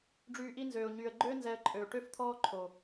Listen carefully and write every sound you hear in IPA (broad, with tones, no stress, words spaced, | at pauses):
ɖ͡ʐyː˧ʔi˦nzøː˨ʊ̯ ɲyː˨ə̯ɡ͡ǃøː˦ nzɛ˧ə̯ǃʼøː˨ ʈø˦ft̪ʰɔː˦ǃʰo˨